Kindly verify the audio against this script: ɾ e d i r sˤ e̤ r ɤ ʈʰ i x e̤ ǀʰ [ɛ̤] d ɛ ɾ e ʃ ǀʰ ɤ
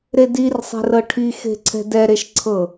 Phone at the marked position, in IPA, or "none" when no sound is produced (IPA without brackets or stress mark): ɛ̤